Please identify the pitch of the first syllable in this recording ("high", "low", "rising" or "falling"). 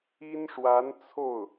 high